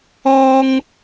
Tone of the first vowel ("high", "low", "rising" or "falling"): high